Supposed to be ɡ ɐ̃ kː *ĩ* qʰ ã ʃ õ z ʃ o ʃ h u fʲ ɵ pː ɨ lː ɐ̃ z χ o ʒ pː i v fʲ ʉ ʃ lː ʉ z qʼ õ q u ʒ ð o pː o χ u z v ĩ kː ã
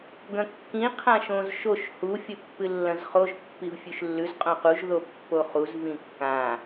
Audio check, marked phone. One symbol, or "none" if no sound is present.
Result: ĩ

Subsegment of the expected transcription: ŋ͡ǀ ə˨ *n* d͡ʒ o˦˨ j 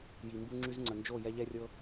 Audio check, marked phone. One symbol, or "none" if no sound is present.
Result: n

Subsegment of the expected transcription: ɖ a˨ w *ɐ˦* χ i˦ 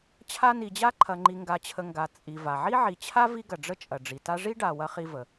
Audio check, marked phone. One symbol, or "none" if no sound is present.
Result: ɐ˦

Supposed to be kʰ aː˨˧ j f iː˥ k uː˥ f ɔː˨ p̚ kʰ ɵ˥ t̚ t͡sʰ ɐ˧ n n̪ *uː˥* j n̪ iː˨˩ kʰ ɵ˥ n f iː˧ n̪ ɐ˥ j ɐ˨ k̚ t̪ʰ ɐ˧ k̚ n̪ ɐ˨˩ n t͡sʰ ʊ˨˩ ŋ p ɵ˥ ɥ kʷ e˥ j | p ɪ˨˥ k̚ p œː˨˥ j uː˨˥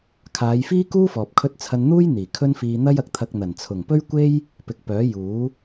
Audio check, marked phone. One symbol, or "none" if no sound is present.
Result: uː˥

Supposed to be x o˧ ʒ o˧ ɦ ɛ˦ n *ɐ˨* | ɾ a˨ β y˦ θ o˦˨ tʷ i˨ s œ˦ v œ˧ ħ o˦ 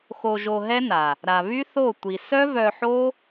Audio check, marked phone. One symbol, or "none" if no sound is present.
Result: a˨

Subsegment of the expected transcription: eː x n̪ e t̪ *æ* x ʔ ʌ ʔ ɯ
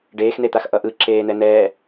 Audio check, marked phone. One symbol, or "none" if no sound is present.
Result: a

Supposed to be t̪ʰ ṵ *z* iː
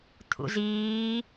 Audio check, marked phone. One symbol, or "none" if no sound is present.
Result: z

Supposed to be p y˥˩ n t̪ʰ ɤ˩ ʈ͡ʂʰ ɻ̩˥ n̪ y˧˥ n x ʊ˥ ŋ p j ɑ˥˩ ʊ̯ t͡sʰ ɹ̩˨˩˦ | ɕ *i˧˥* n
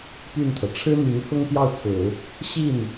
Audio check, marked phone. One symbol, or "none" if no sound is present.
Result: i˥˩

